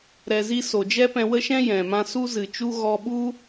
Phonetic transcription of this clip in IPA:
ɾ ɛ˨ z i˧ s o˨ d͡ʒ ɛ˦ p ɛ̃˧ w ə˦ ʃ ɛ̃˦ j ɛ̃˨ m ã˦ s u˦ z ɨ˨ t͡ʃ u˦ ɣ ɔ˧ ɓ u˦

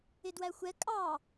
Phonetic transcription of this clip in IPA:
ɪ d w æ xʷ ɛ kʼ ɑ

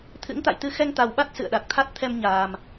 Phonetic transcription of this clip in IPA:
t̪ʰ ɨ̰˧˥ ŋ t̪ a̰˧˨ j t̪ ɨ˧ x ɛ˧ ŋ t̪ a˨˩ w ɓ a˦˥ t̚ s ɨ̰˧˨ ə̯ ɗ a˨˩ k̚ t̪ʰ a˦˥ t̚ t̪ʰ ɛ˧ m ɲ aː˨˩ m

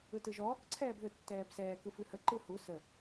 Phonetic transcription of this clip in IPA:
ɯ t ɯ ʒ ɔː k ǀʰ ɛː b ð ɯ tː ɛː b s ɛː k ɯ f ʉ h ə ǃ ɯ h u s ə

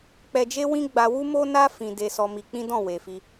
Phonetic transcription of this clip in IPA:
k͡p ɛ˧ d͡ʒ e˦ w ĩ˦ ɡ͡b a˧ w u˦ m o˦ n a˦ f ĩ˧ d e˧ s ɔ˧ m i˧ k͡p ĩ˦ d ɔ̃˦˨ w e˨ f i˧

